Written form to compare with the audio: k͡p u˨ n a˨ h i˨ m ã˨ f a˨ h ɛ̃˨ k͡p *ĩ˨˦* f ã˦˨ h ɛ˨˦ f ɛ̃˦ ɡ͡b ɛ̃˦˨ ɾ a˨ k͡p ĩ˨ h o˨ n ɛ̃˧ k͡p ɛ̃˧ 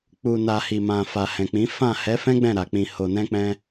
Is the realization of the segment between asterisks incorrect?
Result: no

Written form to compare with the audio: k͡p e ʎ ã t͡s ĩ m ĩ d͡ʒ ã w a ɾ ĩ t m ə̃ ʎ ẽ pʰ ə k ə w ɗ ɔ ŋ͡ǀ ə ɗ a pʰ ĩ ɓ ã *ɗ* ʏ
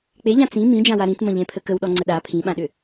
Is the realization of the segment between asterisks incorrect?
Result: no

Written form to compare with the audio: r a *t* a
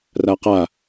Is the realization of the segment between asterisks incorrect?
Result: yes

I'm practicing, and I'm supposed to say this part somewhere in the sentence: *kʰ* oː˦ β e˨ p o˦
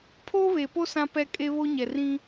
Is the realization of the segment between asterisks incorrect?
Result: yes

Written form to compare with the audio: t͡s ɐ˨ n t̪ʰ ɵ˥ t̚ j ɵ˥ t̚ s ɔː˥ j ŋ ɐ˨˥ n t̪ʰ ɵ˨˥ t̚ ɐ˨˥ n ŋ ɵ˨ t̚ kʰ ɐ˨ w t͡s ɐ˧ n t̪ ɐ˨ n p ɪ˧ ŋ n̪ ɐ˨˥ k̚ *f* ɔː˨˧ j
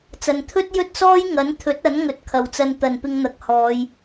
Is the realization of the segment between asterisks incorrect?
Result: yes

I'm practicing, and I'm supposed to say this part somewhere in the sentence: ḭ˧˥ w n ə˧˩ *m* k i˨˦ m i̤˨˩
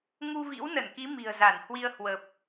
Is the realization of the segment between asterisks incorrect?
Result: yes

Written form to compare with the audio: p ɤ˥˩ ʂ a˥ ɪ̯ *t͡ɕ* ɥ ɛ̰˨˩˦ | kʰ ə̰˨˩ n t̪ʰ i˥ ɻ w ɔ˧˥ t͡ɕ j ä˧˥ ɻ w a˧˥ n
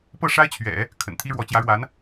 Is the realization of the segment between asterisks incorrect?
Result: yes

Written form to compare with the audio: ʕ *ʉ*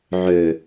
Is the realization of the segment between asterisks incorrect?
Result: yes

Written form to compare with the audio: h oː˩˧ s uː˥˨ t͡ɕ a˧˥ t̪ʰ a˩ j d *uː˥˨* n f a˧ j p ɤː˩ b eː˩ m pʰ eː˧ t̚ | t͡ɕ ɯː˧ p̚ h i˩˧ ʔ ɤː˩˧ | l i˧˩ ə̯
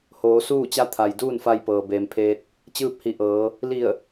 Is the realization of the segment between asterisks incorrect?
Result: no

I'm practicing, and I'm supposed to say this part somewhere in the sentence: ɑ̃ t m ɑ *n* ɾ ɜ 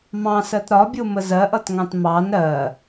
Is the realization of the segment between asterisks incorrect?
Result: no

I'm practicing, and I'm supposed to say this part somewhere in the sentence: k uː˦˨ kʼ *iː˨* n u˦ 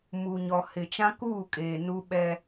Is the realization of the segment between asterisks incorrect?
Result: yes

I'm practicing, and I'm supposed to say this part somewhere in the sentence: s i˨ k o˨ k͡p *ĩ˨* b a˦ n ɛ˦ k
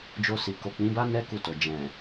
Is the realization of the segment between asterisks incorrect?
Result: yes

